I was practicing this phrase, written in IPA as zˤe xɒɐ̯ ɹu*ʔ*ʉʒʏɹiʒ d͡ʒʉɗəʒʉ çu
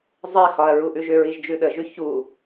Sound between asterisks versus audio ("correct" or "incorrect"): correct